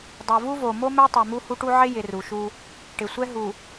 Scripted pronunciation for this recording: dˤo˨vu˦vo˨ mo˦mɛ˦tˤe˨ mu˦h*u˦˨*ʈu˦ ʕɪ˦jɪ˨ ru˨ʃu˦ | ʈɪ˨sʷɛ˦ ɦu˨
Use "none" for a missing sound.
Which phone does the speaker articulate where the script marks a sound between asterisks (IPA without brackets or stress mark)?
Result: u˦